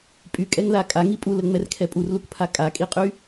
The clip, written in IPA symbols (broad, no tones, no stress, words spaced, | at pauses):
pʼykʼɛŋða kʼaŋi pʼuləŋ͡mɛrkʰɛ pʼurlukpʰa kʼakʼiqʼy